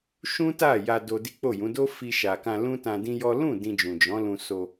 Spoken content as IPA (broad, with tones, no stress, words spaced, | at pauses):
ʃũ˦ta˦˨ja˧ do˧di˦k͡po˦˨jũ˨˦ do˦fi˧ʃa˨kã˧ lũ˦tã˧dĩ˦jɔ˦ lũ˦˨ dĩ˧d͡ʒũ˨ d͡ʒɔ̃˨˦lũ˧ so˧